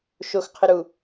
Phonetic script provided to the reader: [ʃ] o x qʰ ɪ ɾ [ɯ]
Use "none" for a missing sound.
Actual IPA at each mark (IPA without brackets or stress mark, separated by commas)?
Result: ʃ, u